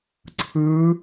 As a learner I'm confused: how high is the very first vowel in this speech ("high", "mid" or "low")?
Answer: high